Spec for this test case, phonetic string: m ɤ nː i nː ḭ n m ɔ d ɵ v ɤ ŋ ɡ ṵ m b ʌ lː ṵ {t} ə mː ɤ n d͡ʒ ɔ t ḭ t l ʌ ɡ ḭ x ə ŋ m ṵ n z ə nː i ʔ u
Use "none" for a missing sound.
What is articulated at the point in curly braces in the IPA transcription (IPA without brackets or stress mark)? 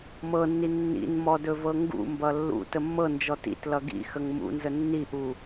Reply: t